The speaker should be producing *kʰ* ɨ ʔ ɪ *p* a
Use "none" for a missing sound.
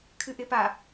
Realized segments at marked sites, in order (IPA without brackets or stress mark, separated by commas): kʰ, p